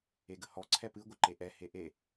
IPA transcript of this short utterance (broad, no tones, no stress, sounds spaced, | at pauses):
e ɡ ə h ɔ ǀʰ ɛ p ɨ ɡʷ ɪ ǃ e ʔ ɛ h e ʔ e